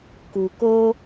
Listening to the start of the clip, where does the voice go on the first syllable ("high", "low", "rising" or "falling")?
low